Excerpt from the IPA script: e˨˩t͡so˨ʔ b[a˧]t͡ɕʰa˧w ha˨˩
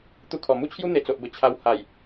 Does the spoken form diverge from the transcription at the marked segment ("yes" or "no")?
yes